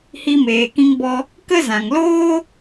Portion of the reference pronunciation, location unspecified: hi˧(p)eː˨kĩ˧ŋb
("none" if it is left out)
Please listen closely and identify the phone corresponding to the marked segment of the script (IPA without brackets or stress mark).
m